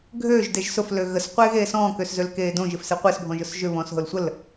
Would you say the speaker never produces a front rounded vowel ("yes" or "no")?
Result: no